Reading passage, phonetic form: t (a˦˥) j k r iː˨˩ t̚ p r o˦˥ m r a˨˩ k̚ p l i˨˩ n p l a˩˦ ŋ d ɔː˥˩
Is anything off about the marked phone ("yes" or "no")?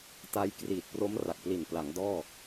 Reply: no